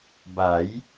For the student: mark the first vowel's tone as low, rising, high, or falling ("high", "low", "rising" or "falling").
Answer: rising